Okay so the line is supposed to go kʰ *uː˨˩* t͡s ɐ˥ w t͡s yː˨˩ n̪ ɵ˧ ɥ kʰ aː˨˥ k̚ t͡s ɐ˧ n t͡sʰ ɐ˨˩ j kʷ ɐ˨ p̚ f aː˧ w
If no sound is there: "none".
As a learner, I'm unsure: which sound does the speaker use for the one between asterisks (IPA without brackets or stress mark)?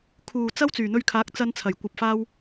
uː˨˩